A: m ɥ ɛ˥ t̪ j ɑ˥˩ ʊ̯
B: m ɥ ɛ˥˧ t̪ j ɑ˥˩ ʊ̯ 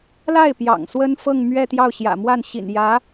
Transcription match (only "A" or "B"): B